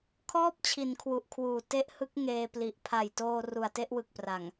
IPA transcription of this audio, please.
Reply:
kʰ ɔː˥˩ p̚ t͡ɕʰ i˩˦ n kʰ w u˨˩ ʔ kʰ w uː˨˩ t e˦˥ ʔ h ɯ˦˥ k̚ ŋ eː˧ p l i˨˩ ʔ pʰ a˨˩ j t oː˧ r u˨˩ a̯ t e˥˩ ʔ w ɯ˨˩ k̚ p r a˨˩ ŋ

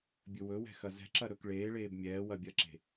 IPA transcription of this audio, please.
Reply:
bʲ ɵ w ɵ w ɛ̤ x ɐ z ɛ̤ ǁ ɐ ɾ ɵ k ɭ eː ɭ eː b mʲ ɛː w ɐ bʲ ɐ ǁ e̤

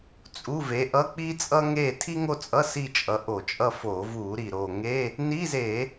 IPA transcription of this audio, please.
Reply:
t͡sʼ u˧˥˧ v e˨˥ ʔ ʌ˧˥˧ k͡p i˥ t͡sʼ ʌ˥ ŋ e˥˨ tʰ i˥ ŋ o˥˨ t͡sʼ ʌ˧˥˧ s i˥˨ t͡ʃʼ ʌ˨˥ ʔ o˧˩˧ t͡ʃʼ ʌ˥˨ f o˧˩˧ v u˧˩˧ ɾ i˨˩ ɾ o˨˩ ŋ e˧˥˧ | n i˧˥˧ z e˧˩˧

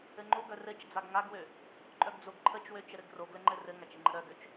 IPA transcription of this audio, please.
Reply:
ɘ ŋ͡ǃ o ɡ œ r ɘ t͡ʃ d͡z a ɡ ŋ a ɡ w ø | ǃʼ œ ɡ d͡z o ɡ ǃʰ ə t͡ʃ w ø t͡ʃ ə ɾ ɘ ɡ r o ɡ l ɘ ŋ͡ǃ ɘ r ɘ ŋ a t͡ʃ ə ŋ͡ǃ ə ɾ œ ɡ ø t͡ʃ

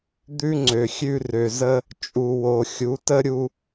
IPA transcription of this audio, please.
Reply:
d̪ ʉ˥ ŋ͡ǀ ø˩ xʲ ʉ˧ r ø˩ z ə˧ | t͡ʃʼ u˩ w o˩ xʲ u˩˧ t ə˥ ɾʲ u˧

